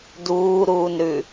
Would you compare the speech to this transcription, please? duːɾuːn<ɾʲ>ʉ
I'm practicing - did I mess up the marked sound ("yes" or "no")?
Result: yes